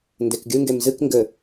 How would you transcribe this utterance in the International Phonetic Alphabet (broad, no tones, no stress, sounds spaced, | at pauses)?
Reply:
n d e k ɡʲ ɨ ŋ ɡ e m z ɨ k ŋ ɡ ɘ